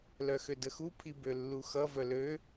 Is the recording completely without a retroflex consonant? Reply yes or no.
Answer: yes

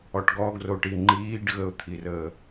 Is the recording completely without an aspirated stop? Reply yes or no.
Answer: no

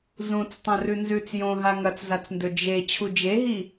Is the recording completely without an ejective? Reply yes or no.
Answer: yes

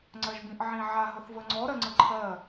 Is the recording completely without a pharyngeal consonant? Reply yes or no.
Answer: no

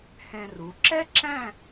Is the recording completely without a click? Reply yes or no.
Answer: no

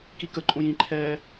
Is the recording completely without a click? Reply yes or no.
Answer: no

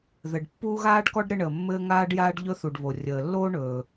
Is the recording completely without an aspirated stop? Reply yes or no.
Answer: yes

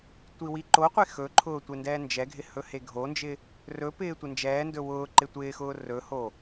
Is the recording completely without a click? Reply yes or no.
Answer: no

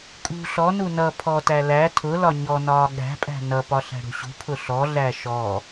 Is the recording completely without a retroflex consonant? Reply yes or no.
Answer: no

